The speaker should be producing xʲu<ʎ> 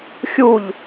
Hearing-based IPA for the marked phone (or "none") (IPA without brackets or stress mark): ʎ